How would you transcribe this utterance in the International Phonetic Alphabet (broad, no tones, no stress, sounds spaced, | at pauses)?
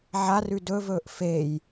ʕ a r ʉ d ɵ v ɵː ʔ f e j